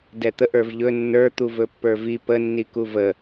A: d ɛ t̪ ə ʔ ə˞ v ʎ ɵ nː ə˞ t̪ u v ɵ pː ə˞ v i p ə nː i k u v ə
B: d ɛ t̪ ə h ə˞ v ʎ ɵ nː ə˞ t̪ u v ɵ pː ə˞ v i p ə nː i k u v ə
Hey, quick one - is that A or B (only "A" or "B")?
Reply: A